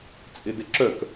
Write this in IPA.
t͡sʼ ɪ d ɪ ǁ œ k

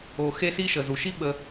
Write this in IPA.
o˩ x e˦ s i˦ ʃ ə˩ z u˩ ʃ i˥ ɓ ə˨

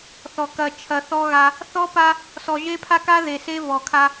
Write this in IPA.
θ ɔ˨ k ɐ˨ t͡ʃʰ ɐ˨ θ ɔ˦ ɣ a˦ | θ ɔ˦ p a˦ | s ɔ˨ ʒ e˦ pʰ a˦ k a˦ ð e˨ s e˦ v ɔ˨ kʰ a˦

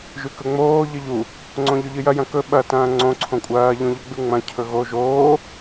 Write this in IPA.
ʒ ʉ k ɵ ŋ͡m oː ʎ ɨ ʎ u | ŋ͡ǀ õ ʎ ɵ ʎ ɨ j ɐ j ɐ̃ k ɵ ɓ ɐ t ɐ̃ː ŋ͡ǀ õ ǀʰ õ kʷʼ ɐː ʎ ũ ʎ ɵ ɡ͡b ʉ ŋ͡m ɐ̃ cʰ ɵ ɣ o ʒ oː

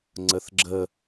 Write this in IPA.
ŋ͡ǀ ə θ ɡ͡ǁ ə

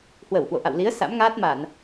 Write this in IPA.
h w ə˧˩ w h w o̰˧˨ ʔ a̰˧˨ w l i˨˦ ə̯ s a̰˧˥ m ŋ aː˦˥ t̚ m a˧˩˨ n

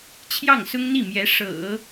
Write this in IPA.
t͡ɕʰ j ɑ˥˩ ŋ s ʊ˥ ŋ n̪ i˥˩ m j ɛ˧˥ ʂ ɤ̰˨˩˦

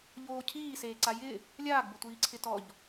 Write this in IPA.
ʎ oː cʰ iː s eː ǀ a j ɪ | lʲ aː ɡ b ʊ tʷ iː ǀʰ ɪ t ɔ ʎ

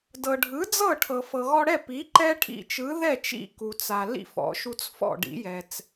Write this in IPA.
d ɤ˩ ɖʱ ɯ˩˥ d͡z ɤ˥˩ ʈʰ ɤ˩ f ɤ˩ ɣ ɔ˧ ɽ ɛ˥˩ p i˩˥ ǃ ɛ˥ ʈʰ ḭ˧ t͡ʃ ɯ˩˥ ð ɛ˥˩ t͡ʃ ḭ˥˩ k u˩ t͡s a˩ l ḭ˥˩ f ɔ̰˩˥ ʃ u˧ t͡s f ɔ̰˥˩ ɖ ḭ˩˥ j ɛ˩ t͡s

